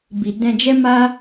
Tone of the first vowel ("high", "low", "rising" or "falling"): low